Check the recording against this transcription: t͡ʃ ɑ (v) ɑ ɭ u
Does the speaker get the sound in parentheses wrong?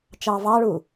no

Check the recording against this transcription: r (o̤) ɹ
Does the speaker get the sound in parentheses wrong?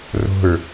no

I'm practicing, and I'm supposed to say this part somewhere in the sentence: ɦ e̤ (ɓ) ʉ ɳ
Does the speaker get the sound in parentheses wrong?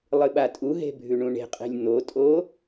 yes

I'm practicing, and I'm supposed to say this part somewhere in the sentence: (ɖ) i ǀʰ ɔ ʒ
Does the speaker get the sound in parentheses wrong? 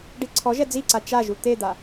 no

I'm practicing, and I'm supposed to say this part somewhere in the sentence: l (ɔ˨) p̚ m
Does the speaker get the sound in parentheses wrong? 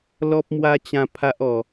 yes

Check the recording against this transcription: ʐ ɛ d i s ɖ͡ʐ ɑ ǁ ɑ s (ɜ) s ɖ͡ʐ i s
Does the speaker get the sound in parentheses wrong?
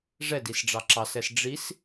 yes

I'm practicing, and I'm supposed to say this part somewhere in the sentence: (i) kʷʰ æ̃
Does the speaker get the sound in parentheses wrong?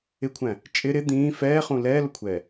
yes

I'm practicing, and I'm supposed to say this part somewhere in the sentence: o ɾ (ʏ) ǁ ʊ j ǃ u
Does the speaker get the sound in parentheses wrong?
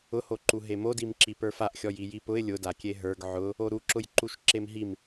yes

